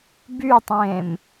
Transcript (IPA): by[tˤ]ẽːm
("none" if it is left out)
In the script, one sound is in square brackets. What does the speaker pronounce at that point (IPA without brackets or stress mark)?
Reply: tˤ